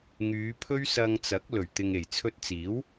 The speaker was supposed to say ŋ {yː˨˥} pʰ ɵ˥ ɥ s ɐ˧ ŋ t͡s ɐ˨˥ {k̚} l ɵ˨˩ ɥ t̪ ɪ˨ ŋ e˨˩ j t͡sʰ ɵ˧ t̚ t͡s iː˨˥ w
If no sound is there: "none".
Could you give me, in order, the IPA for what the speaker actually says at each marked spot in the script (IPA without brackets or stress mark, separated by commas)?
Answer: yː˨˧, k̚